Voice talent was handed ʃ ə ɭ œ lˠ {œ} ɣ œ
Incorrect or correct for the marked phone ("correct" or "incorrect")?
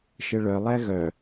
incorrect